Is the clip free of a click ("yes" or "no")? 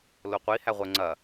no